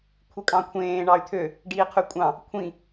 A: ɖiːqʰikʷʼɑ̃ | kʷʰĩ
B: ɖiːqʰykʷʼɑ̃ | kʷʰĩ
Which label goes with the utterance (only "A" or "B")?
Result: B